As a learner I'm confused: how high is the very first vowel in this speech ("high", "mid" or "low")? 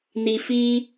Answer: high